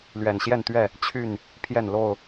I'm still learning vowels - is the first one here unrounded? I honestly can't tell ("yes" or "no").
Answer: yes